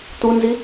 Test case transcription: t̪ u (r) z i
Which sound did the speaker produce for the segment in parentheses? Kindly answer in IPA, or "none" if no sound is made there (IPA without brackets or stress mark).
n